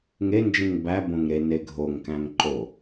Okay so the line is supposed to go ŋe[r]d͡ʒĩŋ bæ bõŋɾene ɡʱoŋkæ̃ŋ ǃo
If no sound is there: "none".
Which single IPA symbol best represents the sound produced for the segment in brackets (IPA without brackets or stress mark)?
n